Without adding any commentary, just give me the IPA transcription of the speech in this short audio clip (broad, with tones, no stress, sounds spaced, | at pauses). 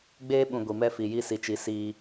ɡ͡b eː˦ ɓ ũ˨ ɡʷ i˨ m ɛ˦ f i˨ j i˦ s i˨ t͡ʃ i˨˦ s i˦